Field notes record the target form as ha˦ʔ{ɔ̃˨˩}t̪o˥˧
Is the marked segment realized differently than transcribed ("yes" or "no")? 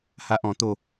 yes